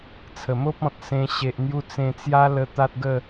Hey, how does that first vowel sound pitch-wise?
low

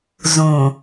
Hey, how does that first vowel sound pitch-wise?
low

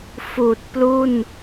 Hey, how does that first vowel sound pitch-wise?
low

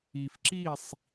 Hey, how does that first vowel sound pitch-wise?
low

